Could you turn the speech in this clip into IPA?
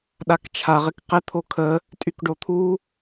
ɗ a k t͡ʃʰ a ʁ ɪ k q ɪ t̪ʰ o kʰ ə | tʼ y k ɖ o t̪ʰ u

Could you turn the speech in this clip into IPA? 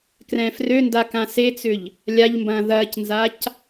k r ɛ̃ f r ø n d a k ã s e t͡s ʏ ʎ | lʲ a ʎ m b ɐ̃ː ð ɐː c n z a c

